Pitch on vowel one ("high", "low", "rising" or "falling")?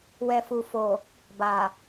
low